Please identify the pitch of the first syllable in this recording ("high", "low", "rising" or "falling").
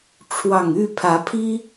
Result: low